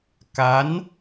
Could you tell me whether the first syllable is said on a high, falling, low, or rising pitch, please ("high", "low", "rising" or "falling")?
rising